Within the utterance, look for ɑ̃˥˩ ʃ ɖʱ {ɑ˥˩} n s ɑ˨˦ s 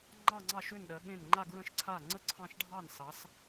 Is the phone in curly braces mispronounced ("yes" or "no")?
no